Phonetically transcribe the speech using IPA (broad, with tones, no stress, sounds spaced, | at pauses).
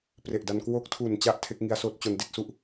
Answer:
p r e˨˩ ʔ d a˧ n k w o˦˥ k̚ tʰ u˨˩ n t͡ɕ a˦˥ ʔ tʰ e˦˥ k̚ ŋ i˦˥ a̯ s oː˦˥ t̚ t͡ɕ o˧ n d i˥˩ t̚ s u˥˩ ʔ